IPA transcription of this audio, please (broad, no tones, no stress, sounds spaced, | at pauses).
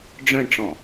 ɖ͡ʐ œ̃ ɳ ʈ͡ʂ ɔ̃